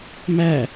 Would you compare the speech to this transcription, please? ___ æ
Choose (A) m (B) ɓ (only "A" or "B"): A